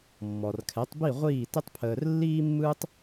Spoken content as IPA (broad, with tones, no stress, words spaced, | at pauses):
mːɔ˩rkʰɛ˩˥tˤbi˥˩ ʁʷiː˥˩tə˥tˤpʰəː˧r lːiː˥mːɯː˥tˤ